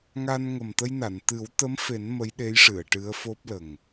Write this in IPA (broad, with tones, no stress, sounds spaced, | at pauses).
ŋ a˧ n ŋ ə˨˩ m t̪ ə˧ j n a˨˩˨ n t̪ ɨ˨˩˦ w t̪ ə˧˥ m f e˨˩˦ n m ə˧˥ j ɗ e˧˥ j ʂ ɨ˨˩˨ ə̯ ʈ ɨ˧˥ ə̯ f o˦˥ p̚ l ə˨˩ ŋ